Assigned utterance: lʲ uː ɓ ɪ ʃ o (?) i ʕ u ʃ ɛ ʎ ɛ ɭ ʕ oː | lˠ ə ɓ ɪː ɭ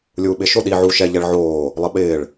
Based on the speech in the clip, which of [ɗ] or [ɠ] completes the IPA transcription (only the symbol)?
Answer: ɗ